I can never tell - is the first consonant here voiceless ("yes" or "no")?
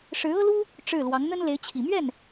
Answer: yes